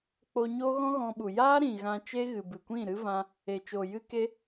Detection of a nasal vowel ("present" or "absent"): present